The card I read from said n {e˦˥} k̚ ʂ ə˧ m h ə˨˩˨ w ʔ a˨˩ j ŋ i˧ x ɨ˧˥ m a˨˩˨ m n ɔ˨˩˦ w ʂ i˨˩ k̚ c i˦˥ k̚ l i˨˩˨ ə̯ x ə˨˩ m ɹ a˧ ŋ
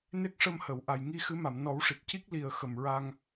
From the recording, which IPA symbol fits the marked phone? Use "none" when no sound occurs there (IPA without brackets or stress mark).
e˦˥